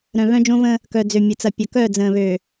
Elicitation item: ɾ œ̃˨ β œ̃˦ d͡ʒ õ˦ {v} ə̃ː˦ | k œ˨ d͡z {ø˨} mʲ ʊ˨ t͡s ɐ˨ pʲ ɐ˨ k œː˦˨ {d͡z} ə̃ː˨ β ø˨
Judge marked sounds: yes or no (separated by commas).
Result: yes, yes, yes